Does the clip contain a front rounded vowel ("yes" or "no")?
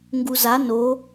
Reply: no